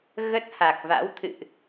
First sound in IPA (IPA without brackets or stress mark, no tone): ɣ